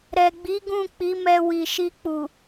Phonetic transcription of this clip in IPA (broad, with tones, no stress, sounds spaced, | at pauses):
ɾ ɛ˨ ɡ͡b i˨˦ ɡ ũ˦˨ k͡p i˨˦ m ɛ˧ w i˨ ʃ i˧ k͡p u˨